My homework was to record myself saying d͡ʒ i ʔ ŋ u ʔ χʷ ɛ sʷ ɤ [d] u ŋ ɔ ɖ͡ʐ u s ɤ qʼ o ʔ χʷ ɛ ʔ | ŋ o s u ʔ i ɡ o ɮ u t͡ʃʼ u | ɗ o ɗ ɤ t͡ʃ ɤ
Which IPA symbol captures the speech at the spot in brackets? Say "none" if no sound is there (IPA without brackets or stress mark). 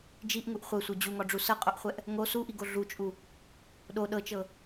d͡ʑ